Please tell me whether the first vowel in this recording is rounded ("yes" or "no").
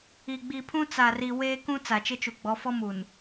no